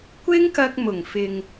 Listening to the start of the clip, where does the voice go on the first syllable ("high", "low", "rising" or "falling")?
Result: high